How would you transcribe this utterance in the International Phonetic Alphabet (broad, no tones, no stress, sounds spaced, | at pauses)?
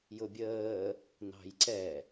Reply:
j ʊ bʲ əː | n ɑ̤ j ǀ ɛ